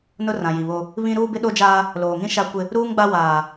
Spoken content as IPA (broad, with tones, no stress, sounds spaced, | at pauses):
n ʊ˦ r ã˨ j i˨ β o˦ | β ĩ˦ ɾ uː˦ b ɪ˦ ɗ o˦ d͡ʒ aː˦ | l oː˨ ŋ ĩ˦ ʃ a˦ kʷ ɪ˦ | ɾ uː˦ ŋ ɡ͡b a˦ w aː˨